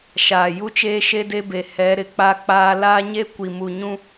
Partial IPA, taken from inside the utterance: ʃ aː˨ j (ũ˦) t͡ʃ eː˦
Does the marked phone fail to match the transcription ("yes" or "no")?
yes